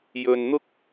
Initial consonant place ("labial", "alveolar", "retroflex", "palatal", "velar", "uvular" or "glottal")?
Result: palatal